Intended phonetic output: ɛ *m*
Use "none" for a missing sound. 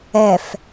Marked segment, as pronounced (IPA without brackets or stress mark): f